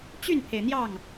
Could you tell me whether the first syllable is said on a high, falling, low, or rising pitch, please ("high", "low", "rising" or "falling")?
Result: falling